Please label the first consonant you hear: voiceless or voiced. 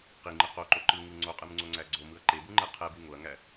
voiceless